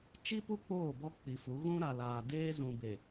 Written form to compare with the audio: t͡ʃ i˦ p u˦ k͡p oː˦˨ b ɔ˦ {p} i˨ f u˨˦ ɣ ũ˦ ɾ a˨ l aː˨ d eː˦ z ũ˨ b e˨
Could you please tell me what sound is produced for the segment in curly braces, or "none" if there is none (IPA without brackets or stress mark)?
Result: k͡p